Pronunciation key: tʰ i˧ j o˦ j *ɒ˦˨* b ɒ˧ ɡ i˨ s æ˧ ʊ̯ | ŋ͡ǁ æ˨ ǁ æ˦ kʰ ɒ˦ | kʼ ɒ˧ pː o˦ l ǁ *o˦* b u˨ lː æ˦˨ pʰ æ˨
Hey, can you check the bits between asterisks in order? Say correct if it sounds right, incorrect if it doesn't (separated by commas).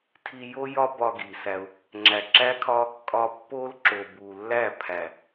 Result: incorrect, incorrect